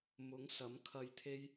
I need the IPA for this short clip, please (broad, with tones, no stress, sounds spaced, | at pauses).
m ʊ˨˥ ŋ s ɐ˨˥ m kʰ ɐ˧ j t̪ʰ e˥ j